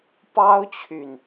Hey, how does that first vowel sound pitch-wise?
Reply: high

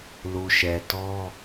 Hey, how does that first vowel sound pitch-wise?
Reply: low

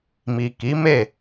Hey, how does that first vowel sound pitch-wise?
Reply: low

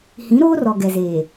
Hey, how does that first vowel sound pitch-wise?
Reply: rising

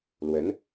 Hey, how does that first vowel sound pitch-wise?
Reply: rising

